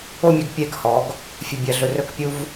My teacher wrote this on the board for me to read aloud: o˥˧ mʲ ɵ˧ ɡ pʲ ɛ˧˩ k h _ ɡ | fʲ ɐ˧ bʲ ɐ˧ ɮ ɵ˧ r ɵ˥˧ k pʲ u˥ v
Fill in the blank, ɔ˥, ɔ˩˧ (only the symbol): ɔ˩˧